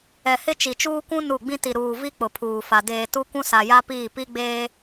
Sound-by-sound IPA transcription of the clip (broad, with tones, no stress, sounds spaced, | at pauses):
ɛ˨ h ɪ˦ t͡ʃ i˨ t͡ʃ uː˦ kʷ ũ˦ n u˦˨ ɡ͡b ĩ˦ t i˨ ɾ uː˨ v i˦ k͡p ʊ˨ pʰ uː˨ f a˨ d eː˨ t u˦ kʷ ũ˦ s a˨ j a˦ p iː˦˨ p i˦ ɡ͡b eː˦